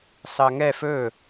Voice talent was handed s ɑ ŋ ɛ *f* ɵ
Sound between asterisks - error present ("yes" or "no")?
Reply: no